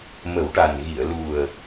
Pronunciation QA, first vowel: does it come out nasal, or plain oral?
oral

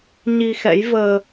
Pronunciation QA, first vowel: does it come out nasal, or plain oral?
oral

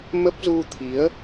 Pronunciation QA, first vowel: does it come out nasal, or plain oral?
oral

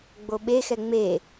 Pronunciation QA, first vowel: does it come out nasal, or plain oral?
oral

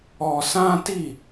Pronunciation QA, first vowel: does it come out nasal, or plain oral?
oral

